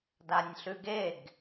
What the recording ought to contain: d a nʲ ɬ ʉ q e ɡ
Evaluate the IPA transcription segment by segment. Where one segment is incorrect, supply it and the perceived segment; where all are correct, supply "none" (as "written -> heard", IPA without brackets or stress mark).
q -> ɡ